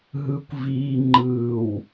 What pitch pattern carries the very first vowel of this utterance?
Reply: low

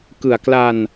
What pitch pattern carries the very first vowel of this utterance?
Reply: low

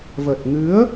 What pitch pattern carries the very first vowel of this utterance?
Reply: low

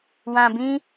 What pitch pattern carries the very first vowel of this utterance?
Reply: low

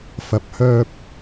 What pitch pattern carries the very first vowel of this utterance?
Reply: rising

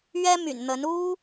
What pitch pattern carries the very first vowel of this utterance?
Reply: high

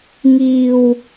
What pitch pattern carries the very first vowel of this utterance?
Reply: low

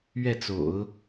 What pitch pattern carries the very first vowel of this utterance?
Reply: falling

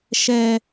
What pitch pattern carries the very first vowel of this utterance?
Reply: high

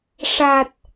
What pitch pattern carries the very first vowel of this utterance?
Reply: low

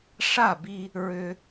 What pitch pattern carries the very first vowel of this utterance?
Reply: falling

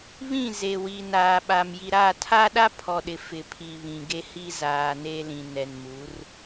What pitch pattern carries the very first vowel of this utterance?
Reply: falling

